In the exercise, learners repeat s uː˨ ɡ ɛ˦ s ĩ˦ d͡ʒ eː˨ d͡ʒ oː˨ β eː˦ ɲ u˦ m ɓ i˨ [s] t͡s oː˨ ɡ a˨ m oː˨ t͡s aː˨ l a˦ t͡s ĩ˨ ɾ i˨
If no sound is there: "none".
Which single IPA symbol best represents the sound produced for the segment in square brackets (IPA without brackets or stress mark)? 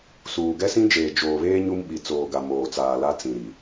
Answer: none